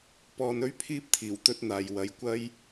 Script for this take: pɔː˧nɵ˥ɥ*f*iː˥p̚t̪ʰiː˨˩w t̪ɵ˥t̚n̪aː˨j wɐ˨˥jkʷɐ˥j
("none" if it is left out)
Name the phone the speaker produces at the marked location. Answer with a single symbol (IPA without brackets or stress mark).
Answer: pʰ